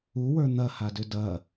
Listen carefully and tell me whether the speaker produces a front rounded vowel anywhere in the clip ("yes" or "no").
yes